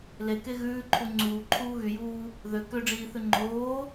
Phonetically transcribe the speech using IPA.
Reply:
leke ɣʉːǃʰu ŋ͡ǀuːǃʰuː ɣyjuː | ðø køɖ͡ʐiːθʉ ŋ͡ǃoː

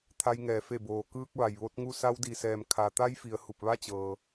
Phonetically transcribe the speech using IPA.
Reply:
t̪ʰa˧jŋɛː˩ fe˧˩boː˩ kɯː˧k̚ʋa˩j ʋo˧˥t̚ŋu˥˨ sa˧wdi˩sɛː˩m kʰa˩t̪a˧˥jfi˩ə̯ hu˧˩p̚ʋa˥˨t͡ɕɤː˩

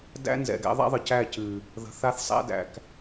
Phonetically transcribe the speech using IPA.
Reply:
dæ̰˦nzɛ̰˨ɡɛ̰˦ ðˤa̰˦ðˤɨ˨cæ˦˨ cɨ˨ | ðə̤˨θa˦θ sˤæ̰˦dæ̰˨k

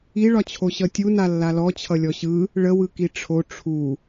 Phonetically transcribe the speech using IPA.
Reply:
iɭɒt͡ɕʰo ɕʌtʲu nalːalɔ t͡ɕʰʌlʲɔɕɯ | ɭəwɯki ʈ͡ʂʰo ʈ͡ʂʰu

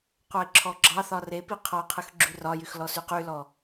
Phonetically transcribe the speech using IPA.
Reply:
qʷɑɪ̯ǁʰɔɡ͡ǁɑθɒ repi qʰɔqʰɯx ɡ͡ǁyrɒjyx lɔsyqylɔ

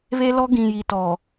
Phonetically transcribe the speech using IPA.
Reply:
βe˦lɔ˦ɡĩ˨ji˨ tɔ˨

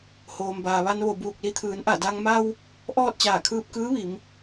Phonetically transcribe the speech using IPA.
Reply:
hoː˩mbaː˩ʋa˧n ʋo˧˩buː˧˩k̚li˧t̪ʰɯː˩˧n ʔa˧˩da˧ŋ ma˧w | ʔɔː˥˨t̚t͡ɕaː˧˩kʰɯː˧p̚ kɯː˧˥ʋi˩˧m

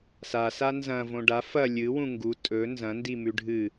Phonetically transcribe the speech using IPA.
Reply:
sasa nzɐ̃võ ɖa fɐ lʲɨwũ ŋɡu tʼɵ nzɐ̃ndimʉ ɖʱɨ

